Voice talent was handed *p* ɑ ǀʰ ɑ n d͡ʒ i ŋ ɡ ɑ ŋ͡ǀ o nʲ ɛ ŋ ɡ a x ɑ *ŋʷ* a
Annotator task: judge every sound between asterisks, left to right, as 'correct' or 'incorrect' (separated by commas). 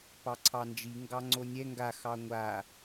correct, correct